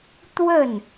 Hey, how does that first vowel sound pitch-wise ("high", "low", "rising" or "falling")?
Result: falling